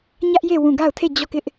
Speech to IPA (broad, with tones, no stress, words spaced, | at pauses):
ɲä˦ʔje˦˨ wũ˦˨ ɡa˦˨ʊ̯tʰe˦˨d͡ʑɔ˦˨kɪ˦ʔ